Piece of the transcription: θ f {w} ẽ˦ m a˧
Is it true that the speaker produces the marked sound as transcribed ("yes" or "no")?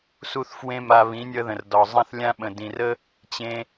yes